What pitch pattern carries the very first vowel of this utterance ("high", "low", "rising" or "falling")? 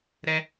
high